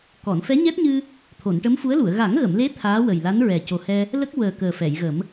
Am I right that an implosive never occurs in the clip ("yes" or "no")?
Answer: yes